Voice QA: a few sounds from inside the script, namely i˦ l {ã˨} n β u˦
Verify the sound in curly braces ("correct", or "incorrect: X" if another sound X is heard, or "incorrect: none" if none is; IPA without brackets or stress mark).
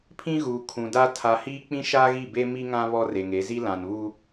correct